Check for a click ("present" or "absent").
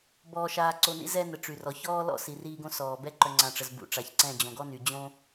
present